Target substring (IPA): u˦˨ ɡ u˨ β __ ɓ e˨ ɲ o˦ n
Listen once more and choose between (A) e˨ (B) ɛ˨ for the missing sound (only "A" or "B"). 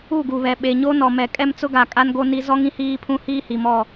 B